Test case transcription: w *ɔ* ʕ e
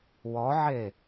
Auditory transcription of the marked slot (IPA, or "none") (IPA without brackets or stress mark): ɔ